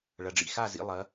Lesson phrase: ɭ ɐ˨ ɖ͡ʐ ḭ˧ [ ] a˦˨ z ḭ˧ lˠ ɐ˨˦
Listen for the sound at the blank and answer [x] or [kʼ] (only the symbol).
x